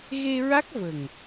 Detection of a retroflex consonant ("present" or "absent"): absent